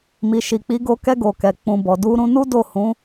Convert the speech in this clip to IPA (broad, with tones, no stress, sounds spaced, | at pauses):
m i˨ ʃ i˨ k͡p i˨˦ ɡ o˧ k ɛ˧ ɡ o˨ k ɛ˨ k͡p ũ˨ b ɔ˨ d u˧ ɾ ũ˧ n u˦ d o˦˨ h ũ˨˦